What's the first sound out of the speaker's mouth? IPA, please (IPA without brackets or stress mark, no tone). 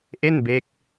ʔ